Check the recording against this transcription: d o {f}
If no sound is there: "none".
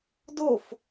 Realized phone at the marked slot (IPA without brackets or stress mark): f